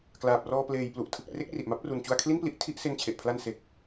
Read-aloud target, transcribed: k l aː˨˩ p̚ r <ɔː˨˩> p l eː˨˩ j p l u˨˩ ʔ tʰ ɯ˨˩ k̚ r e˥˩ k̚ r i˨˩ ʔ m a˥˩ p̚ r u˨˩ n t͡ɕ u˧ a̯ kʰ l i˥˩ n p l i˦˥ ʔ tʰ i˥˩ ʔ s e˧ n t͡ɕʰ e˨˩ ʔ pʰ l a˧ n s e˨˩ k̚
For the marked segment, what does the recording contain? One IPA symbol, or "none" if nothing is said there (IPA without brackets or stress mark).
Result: ɔː˧